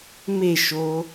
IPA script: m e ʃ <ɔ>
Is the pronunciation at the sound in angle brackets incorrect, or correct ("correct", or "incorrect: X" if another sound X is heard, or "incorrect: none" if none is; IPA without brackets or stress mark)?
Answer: incorrect: o